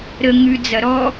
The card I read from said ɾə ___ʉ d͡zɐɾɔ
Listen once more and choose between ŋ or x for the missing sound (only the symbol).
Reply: ŋ